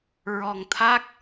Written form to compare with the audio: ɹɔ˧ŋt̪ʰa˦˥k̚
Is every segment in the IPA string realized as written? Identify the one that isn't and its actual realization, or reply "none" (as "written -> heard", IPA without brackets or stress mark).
none